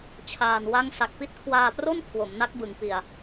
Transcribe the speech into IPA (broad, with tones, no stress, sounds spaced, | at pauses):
t͡ɕʰ aː˨˩ n w a˦˥ ŋ s a˨˩ k̚ p i˦˥ t̚ kʰ w aː˧ p r o˥˩ n kʰ w o˩˦ m n a˦˥ k̚ b ɯ˨˩ ŋ p i˨˩ a̯